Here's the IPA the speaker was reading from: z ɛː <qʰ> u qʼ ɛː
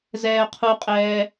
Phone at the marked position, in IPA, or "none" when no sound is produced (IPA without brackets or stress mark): qʰ